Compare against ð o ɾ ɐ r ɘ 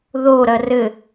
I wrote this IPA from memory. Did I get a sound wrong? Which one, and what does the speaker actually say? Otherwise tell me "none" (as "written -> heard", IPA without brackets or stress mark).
none